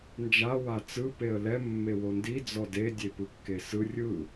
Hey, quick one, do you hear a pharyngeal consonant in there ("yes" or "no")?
no